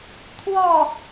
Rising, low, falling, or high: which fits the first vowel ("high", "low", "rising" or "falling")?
falling